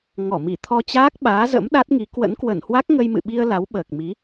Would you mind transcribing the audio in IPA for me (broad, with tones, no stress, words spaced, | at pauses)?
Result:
ŋɔ˧˩mi˧˩t̪ʰɔ˧t͡ɕaː˦˥k̚ ɓaː˨˦zə̰˧˥m ɗa˦˥t̚ŋi˨˦ kwə̰˧˥nkwə˧˩nhwa˦˥k̚ ŋə˧jmɨ̰˧˨ɓi˧ə̯ la˨˦wɓəː˨˩k̚mi˨˦